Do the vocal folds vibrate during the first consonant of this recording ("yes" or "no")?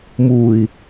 yes